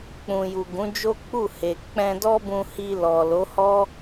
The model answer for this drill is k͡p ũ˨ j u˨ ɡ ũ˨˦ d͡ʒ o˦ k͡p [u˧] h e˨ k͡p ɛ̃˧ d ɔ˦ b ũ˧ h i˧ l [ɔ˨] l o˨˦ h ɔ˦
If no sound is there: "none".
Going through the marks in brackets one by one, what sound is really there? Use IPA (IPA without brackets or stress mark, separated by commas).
u˦˨, ɔ˨